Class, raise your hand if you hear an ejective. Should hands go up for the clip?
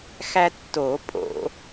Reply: yes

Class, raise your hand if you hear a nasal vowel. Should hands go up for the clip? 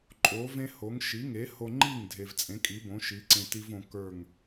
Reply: yes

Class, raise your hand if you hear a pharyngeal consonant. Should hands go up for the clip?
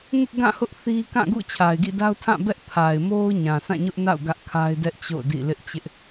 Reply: no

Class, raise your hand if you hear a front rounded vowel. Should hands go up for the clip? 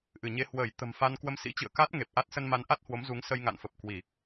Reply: no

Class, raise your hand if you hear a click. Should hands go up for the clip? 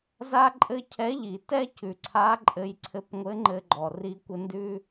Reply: yes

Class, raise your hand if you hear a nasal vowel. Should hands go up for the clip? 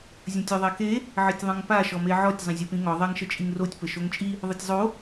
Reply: yes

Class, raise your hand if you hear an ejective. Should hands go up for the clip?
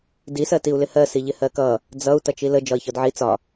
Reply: no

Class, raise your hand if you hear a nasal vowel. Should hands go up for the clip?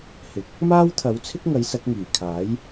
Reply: no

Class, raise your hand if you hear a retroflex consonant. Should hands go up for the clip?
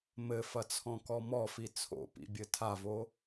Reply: no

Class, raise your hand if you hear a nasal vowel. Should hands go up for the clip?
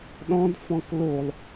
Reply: yes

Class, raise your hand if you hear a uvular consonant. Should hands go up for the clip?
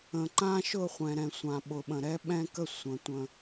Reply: yes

